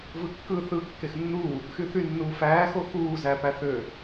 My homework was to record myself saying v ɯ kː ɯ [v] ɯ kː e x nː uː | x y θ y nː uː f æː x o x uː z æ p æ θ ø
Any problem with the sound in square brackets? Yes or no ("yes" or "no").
yes